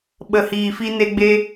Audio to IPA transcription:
ɓ ə˨ h iː˨ f i˧ n e˧ ɡ͡b e˧

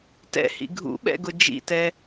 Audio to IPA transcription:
t ɛ̰ h ḭ ɡʱ ṵ ɓ ɛ̰ ɡ ʊ d͡ʒ ḭ t ɛ

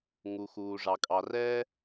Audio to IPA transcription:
ŋ u˩ x uː˩ ʐ ɑ˩ kʼ ɑ˩ r ɛː˥

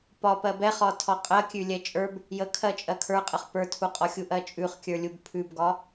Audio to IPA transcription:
p ɒ p ɜ b ɛ χ ɒ tʰ ɒ qʼ ɜ kʲ ʉ lʲ ɛ t͡ʃʼ ə˞ b | j ə kʰ ɜ t͡ʃʼ ɜ kʰ ə˞ qʼ ə χ p ə˞ tʰ u qʼ ɒ xʲ u ʔ ɜ t͡ʃʼ ʉ χ kʲ ə˞ lʲ u b pʰ ʉ b ɡ ɒ

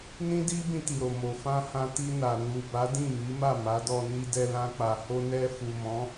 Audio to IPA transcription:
n ĩ˦ d i˦ b ĩ˧ t i˨ ɾ o˨ m o˨ f ã˧ h ã˧ t i˧ n a˨ n u˨ b a˨˦ d ĩ˦˨ m i˨˦ m a˦˨ m a˨˦ d ɔ˧ n i˧ d ɛ˧ l ã˧ k͡p a˨ h o˧ n ɛ˧ f u˨ m ɔ̃˨˦

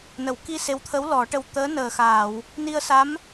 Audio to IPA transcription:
n ə˨˩˨ w k i˧ s e˧˥ w t̪ʰ ə˧˥ w l ɔ˨˩˦ ʈ ə˧ w t̪ əː˧˥ n əː˨˩ x aː˨˩˨ w | n i˧ ə̯ s a˧˥ m

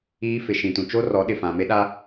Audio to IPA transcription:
iː˦ f ɪ˨ ʃ ĩ˨ t ũ˨ t͡ʃ o˦ r ɔ˨˦ ɗ ɪ˨ f ã˨ m e˦ ɗ a˦

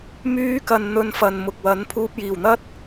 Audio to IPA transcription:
m yː˧ k ɐ˨ n n̪ ɵ˧ n f ɐ˨ n m ʊ˨ k̚ w ɐ˨˥ n pʰ uː˧ p̚ j iː˨˩ w n̪ ɐ˥ t̚

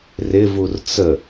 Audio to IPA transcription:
r ɪ v u r t͡s ə

